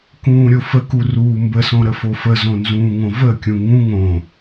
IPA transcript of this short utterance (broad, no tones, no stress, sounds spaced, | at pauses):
k ũː ɾʲ o f ə k u r uː m b ə s õ ɾ ə f o f ə z õ n z ũː ŋ õ v ə kʲ ũ ŋ ũ ŋ õ